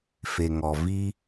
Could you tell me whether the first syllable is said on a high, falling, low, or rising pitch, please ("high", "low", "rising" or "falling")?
low